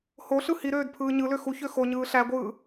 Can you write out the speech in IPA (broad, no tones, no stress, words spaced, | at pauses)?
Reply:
hoɬɯ hiɾøːd pʰɯːɲɯlø xuçø xoɲɯː ɬæɡʷɯː